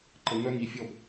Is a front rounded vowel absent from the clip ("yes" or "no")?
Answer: no